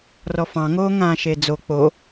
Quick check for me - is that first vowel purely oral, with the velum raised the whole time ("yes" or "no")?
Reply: yes